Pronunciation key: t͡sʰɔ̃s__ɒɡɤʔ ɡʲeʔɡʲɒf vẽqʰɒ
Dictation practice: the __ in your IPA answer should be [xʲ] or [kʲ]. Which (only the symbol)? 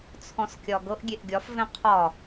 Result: kʲ